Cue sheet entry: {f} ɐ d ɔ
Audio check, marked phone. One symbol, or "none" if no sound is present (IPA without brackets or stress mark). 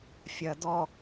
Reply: fʲ